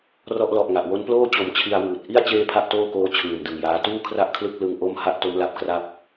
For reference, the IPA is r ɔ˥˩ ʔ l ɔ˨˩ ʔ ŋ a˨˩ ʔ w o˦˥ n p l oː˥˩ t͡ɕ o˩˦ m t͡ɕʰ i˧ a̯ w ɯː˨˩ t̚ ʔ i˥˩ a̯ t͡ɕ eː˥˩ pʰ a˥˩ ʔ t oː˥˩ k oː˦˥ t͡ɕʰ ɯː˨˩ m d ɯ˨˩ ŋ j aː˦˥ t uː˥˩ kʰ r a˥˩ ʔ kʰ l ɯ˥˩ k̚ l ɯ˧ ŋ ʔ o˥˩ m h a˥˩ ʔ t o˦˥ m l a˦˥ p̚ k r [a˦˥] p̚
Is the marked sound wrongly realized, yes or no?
yes